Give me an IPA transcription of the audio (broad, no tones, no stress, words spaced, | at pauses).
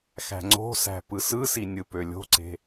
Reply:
xæ̤ŋ͡ǀo̤sæ̤ pɯsɯsi nʲɯpølʲo̤ǀe̤